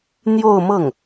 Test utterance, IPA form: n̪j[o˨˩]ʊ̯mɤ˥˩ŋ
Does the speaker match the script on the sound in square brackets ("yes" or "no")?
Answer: no